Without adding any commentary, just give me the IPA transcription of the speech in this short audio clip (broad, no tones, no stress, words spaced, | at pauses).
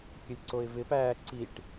kʲəlʲǀoɪ̯vɪpæː ǀiʈ